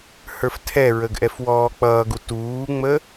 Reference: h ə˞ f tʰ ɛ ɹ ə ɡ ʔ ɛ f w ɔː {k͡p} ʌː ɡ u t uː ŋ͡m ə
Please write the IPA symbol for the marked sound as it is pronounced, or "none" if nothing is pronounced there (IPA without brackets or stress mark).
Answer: k͡p